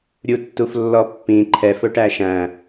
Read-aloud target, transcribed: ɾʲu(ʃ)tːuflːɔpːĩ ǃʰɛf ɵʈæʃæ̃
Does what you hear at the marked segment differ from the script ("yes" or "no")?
yes